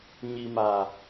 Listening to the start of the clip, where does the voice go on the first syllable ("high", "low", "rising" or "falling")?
low